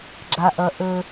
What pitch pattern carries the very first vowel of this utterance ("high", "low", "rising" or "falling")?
high